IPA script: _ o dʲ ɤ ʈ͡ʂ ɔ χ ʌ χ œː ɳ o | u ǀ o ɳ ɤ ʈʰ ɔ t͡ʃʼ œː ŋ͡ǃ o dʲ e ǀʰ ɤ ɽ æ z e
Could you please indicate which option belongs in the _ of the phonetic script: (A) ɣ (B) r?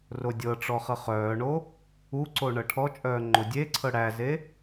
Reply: B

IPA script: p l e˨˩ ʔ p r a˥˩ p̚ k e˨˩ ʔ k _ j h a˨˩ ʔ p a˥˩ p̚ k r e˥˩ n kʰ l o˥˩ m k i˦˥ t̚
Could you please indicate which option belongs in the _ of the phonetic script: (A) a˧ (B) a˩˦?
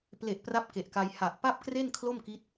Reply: A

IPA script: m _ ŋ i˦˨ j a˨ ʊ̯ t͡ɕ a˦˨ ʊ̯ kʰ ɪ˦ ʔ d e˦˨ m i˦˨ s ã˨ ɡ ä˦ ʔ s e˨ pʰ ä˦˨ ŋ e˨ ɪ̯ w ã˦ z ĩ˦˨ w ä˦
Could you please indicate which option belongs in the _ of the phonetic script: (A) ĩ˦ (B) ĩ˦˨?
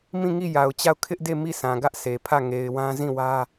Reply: B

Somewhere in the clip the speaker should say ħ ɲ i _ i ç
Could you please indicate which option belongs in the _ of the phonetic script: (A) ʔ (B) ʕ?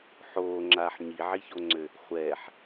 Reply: B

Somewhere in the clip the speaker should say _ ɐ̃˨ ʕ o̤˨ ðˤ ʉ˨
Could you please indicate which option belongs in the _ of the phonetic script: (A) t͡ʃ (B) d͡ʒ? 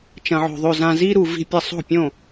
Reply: A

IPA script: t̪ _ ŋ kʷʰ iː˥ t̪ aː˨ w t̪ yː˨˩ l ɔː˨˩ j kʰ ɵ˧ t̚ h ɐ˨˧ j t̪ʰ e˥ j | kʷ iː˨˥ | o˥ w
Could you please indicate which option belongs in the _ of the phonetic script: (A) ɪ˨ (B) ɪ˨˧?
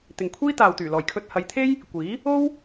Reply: A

